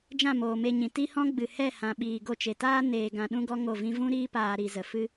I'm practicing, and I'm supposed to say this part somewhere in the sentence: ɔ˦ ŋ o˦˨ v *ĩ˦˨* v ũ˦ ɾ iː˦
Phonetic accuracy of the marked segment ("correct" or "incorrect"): incorrect